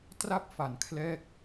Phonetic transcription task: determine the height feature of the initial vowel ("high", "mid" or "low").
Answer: low